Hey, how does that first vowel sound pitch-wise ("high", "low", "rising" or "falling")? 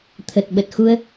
low